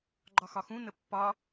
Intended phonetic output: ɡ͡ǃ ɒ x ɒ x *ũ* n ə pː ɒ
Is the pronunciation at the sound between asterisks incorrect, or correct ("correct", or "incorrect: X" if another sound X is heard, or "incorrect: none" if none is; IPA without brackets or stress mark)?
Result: correct